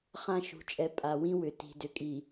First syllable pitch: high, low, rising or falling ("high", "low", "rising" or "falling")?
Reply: falling